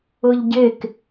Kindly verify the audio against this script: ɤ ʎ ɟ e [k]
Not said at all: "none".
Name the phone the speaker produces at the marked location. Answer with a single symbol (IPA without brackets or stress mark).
k